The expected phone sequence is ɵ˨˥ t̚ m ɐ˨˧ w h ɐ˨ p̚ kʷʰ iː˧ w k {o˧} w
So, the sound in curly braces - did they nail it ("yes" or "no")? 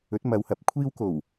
no